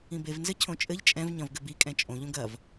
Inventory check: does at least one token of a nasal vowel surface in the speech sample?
yes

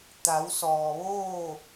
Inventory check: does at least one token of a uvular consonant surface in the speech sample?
no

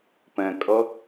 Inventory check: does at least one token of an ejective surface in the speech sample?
yes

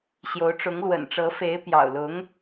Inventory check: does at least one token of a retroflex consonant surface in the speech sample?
yes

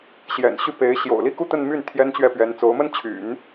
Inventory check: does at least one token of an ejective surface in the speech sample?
no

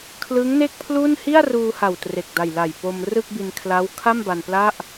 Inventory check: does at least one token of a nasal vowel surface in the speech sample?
no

